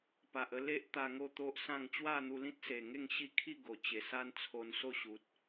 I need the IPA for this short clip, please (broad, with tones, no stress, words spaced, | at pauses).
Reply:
pa˨ʔə˧le˦ʔ t̪a˧ŋo˥˧t̪o˦ʔsã˥˧ŋ t͡ɕwa˥˧n̪u˧lĩ˦t̚se˨˩ ŋe˥˧ŋɕi˦kʰi˥˧ ɡo˨˩t͡ɕe˨˩sa˦n t͡sʰo˧n so˥˧ɕu˨t̚